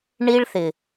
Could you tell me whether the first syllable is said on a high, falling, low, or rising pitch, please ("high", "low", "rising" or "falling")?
high